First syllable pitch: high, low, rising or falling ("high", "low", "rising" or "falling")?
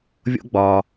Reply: high